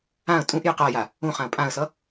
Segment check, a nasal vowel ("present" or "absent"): present